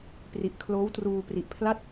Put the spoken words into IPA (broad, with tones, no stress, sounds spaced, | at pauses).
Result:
p r i˨˩ ʔ kʰ l oː˦˥ w t r uː˧ p r i˨˩ ʔ pʰ l a˥˩ t̚